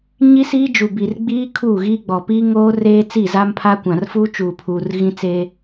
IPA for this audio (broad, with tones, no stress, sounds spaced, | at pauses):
ɲ i˦ s iː˦ d͡ʒ u˨ b i˨ r ɡ͡b iː˦ kʰ uː˦˨ ɣ iː˦ ɡ͡b ɔ˨ p iː˦ ŋ oː˦ r eː˦ t͡s i˦˨ z a˦ m pʰ a˦ kʷ ã˨ r f uː˦ t͡ʃ uː˨ pʰ uː˨ r ɣ ĩ˦ t͡s e˦